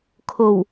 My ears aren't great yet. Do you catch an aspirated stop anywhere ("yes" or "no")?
yes